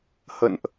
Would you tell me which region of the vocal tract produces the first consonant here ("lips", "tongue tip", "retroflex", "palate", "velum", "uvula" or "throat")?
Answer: throat